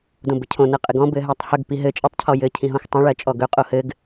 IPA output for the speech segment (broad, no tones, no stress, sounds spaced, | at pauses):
d õ b ɘ cʰ õ n ɜ qʼ ɘ ɡ ɔ̃ b ɘ ɦ ɜ tˤ h ɵ ɡ p i ɦ ɘ t͡ʃʼ i tˤ cʰ ɔ j ɘ cʰ ĩ ɦ õ x tˤ õ ɭ ɜ t͡ʃʼ ɔ ɡ ɵ qʼ o h ɘ ɡ